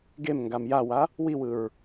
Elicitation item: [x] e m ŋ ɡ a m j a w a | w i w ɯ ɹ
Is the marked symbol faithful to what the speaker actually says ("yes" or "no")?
no